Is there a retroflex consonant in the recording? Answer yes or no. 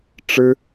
yes